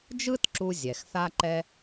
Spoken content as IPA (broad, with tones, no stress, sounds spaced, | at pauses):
d͡ʒ ɯ˥ t ǁ u˧ zʲ ɛ˩ x θ a˧ ǃ ɛ˧